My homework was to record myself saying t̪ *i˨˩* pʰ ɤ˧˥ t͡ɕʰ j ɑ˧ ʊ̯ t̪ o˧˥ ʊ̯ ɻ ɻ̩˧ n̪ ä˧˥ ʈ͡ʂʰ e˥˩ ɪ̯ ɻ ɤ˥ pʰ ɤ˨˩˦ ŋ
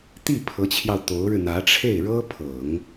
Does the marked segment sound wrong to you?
yes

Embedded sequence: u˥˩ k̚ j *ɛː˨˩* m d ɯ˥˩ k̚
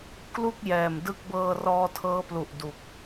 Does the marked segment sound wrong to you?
no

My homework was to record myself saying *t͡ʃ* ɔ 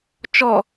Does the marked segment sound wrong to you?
no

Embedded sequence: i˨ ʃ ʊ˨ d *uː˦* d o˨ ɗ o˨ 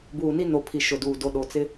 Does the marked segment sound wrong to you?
yes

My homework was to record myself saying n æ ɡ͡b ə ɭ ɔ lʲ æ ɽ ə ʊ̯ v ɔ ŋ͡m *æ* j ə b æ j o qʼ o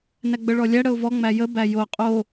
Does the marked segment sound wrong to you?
no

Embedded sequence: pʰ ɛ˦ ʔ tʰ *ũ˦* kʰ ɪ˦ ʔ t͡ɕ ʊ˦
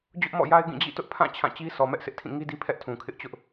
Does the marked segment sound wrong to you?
yes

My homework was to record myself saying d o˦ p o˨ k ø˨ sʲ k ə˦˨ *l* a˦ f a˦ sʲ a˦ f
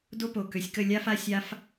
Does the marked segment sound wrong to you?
yes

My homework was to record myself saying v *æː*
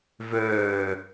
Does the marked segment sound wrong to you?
yes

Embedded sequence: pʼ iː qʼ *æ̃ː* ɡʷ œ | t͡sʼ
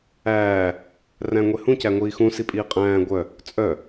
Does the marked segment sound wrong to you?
no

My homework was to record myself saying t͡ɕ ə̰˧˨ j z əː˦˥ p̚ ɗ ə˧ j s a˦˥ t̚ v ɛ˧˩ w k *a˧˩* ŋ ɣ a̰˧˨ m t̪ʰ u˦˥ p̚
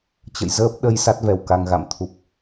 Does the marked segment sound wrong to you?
yes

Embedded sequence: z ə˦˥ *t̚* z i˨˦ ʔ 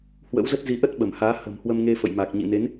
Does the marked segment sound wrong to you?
no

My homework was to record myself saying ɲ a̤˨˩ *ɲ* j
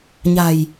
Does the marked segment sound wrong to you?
yes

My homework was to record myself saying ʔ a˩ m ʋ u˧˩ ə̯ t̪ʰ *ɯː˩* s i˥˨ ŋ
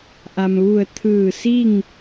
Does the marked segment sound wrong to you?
yes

